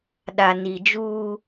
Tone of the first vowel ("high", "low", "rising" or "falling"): low